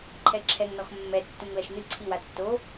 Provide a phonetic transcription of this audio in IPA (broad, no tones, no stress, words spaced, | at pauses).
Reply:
ǃʰɛǁʰɛŋnɔx mːɛ tːũŋlɐʃnɨ ǀʰiwa tːo